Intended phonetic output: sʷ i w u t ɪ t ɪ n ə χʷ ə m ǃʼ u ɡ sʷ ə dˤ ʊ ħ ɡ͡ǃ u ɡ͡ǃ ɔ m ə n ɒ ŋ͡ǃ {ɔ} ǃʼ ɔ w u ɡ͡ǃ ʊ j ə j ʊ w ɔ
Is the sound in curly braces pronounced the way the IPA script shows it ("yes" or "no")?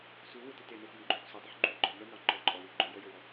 yes